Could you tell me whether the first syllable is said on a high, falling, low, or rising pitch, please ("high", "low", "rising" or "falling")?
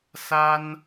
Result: high